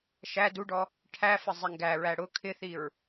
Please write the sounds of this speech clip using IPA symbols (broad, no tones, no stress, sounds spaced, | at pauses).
ʃ æ d u ɖ ɔ | ʈʰ æ f ə zˤ ɪ ŋ ɡ æ ɹ æ ɽ ʊ kʰ ɪ θ i ɹ